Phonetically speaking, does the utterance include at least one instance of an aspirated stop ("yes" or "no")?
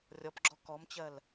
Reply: no